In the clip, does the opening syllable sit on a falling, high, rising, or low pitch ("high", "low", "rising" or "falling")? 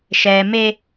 high